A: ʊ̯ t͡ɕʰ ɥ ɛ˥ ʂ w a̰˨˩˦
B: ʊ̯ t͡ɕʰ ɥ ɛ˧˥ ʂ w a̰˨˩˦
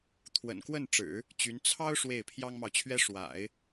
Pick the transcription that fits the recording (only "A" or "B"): A